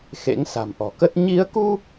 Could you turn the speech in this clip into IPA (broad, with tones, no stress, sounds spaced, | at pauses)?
x ḛ˧˥ ŋ s a̤˨˩ m ʔ ɔ̤˨˩ k ə˦˥ t̚ ɲ i˨˦ ə̯ k u˧